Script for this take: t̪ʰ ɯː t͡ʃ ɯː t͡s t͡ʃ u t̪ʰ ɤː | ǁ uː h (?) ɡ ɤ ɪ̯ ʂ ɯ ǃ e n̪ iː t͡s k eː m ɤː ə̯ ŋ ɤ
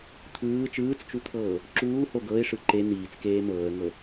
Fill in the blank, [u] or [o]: o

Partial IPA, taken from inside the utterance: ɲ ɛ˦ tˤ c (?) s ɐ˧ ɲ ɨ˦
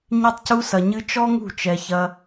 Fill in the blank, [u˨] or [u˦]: u˦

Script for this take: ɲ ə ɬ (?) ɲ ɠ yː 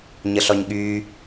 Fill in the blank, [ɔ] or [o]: ɔ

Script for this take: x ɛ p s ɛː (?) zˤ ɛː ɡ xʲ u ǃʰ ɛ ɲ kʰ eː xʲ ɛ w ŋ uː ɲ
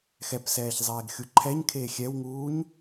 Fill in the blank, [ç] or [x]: ç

